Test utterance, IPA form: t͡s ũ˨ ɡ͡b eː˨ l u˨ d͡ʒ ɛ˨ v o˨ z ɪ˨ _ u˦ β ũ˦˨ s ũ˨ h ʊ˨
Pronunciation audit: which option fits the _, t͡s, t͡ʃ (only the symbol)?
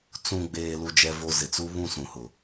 t͡s